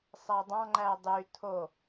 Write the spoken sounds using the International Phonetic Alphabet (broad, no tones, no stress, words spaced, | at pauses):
sˤædˤɑ̃ ŋ͡ǃædˤy tʰo